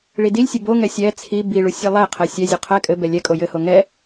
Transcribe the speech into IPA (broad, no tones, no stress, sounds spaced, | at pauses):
ɭ i d i lʲ sʲ ɘ b o ŋ ɛ sʲ ɛ t͡sʰ i b i ɭ u sʲ ɘ lˠ ɛ qʰ ɛ sʲ ɛ zʲ u qʰ ɛ kʼ ɘ b ɛ lʲ ɛ kʼ o j ɘ h o ŋ ɛ